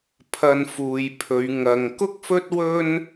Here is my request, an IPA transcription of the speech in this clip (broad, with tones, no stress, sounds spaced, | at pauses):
pʰ ɐ˧ n f uː˨ j pʰ ɵ˨˧ ɥ ŋ ɐ˧ ŋ k ʊ˥ k̚ f ɵ˥ t̚ w ɵ˥ n